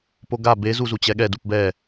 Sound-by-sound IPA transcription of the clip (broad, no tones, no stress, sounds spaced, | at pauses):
p o ɡ a b e z u z u t͡ɕ ɛ ɠ ɛ d u p b ɛ